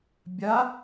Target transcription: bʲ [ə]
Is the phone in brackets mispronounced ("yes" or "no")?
yes